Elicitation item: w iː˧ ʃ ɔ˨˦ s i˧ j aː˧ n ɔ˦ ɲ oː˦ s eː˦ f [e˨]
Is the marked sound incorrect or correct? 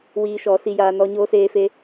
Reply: incorrect